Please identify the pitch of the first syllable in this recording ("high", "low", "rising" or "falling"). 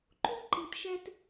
high